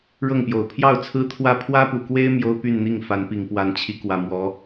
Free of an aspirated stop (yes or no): no